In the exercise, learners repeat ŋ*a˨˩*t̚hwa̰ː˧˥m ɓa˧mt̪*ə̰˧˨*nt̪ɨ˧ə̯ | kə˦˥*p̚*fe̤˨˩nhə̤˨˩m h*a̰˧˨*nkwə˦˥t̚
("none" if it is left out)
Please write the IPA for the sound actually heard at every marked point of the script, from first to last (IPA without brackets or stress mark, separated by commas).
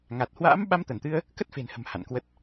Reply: a˨˩, ə˧˩, t̚, a̰˧˨